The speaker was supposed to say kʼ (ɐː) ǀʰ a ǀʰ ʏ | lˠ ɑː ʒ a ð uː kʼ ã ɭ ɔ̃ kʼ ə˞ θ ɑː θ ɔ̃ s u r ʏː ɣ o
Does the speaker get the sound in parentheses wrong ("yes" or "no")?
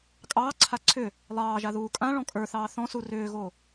yes